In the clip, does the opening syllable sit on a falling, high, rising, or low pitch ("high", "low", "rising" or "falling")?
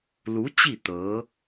rising